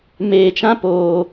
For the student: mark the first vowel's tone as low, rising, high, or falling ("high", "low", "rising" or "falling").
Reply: low